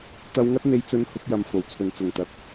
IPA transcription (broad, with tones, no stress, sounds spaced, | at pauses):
t̪ ɐ˧ w ŋ ɐ˥ t̚ n̪ e˧ j t͡s ɵ˧ n h ʊ˧ k̚ j ɐ˨ m f o˨˩ w t͡sʰ ɵ˨˩ n t͡s ʊ˨˩ ŋ t̪ ɐ˧ k̚